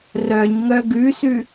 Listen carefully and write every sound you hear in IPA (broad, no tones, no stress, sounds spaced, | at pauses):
r œ ɲ ŋ œ ɡ ʉ s ʉ